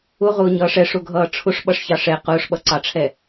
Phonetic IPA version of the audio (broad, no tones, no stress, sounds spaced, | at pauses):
ʊ ʁ ʊː ɲ ʌː ʂ ɛ ʂ ʊ ɡʱ ʌː ʈ͡ʂʰ ʊ ʂ ɓ ʌ ʂ ç ɑ ʂ ɛ q ʊː ʂ ɓ ʌ ǀ ɑ ʈ͡ʂʰ ɛ